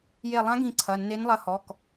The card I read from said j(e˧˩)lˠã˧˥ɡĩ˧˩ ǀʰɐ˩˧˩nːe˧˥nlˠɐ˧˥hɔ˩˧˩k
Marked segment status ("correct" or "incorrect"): correct